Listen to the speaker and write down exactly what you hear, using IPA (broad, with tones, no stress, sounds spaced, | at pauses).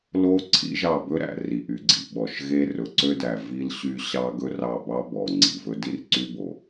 l o˦ ǀʰ ḭ˦ ʒ ɑ˦˨ b ɵ˦ ɾ æ̰˨ r i˨ ʔ y˨ ɡ͡ǀ ḭ˨ ɓ ɔ˨ ʃ ɣ e˦ r ɵ˨ ǀ ø˦ d æ˨ v i˦ l ɕ y˦ ɕ ɑ˦ ɡ ɵ˦ r ɑ˦˨ b ɑ˦ b ɔ˨ ŋ͡ǀ ḭ˨ v ɵ˦ d i˦ r ǀ y˦ b o˨